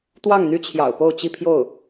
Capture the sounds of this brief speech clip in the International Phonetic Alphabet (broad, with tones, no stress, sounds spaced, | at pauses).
t̪ w ɑ˥˩ ŋ n̪ y˥ t͡ɕʰ j ɑ̰˨˩ ʊ̯ p o˥˧ ʊ̯ t͡ɕ i˥˧ pʰ j o˥˩ ʊ̯